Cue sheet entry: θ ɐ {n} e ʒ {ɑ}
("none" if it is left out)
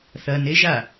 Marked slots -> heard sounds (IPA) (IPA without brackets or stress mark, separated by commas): n, a